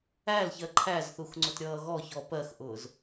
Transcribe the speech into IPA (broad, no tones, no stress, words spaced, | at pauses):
ælçɜ ǃʰæzθuxŋ͡ǀʊtɾʲʌː ɣɔçɔ pɜxʔʊːz